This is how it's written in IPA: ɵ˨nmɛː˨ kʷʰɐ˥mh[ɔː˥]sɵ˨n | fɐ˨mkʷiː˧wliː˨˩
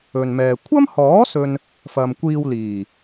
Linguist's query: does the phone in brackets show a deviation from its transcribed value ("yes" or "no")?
yes